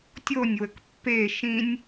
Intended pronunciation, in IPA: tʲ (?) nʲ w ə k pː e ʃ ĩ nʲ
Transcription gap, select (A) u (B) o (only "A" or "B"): B